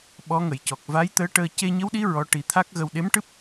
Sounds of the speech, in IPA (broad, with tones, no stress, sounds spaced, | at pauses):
ɓ ɔ˧˥ ŋ ə˨˩˨ j c ɔ˨˩ k̚ v a˧˥ j t̪ əː˧˥ ʈ əː˧ c e˧ ɲ ə˧˥ w ɗ i˧˥ ɹ ɔ˧˥ ʈ i˨˩˦ t̪ʰ a˦˥ k̚ ɣ ə˧ w ɗ e˧˥ m ʈ ɨ˦˥ p̚